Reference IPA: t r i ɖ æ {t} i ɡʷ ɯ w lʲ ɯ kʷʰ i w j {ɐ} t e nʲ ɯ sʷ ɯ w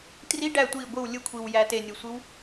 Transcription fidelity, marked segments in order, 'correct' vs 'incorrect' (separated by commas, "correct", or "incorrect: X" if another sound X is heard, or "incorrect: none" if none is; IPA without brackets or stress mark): incorrect: tʷ, incorrect: æ